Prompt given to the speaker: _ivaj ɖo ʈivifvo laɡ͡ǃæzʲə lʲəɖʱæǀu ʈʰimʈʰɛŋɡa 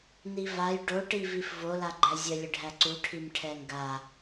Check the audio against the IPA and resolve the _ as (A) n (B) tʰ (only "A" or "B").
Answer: A